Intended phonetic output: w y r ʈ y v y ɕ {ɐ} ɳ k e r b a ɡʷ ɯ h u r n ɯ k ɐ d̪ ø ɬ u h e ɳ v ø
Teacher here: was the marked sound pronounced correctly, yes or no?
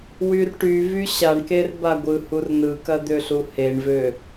no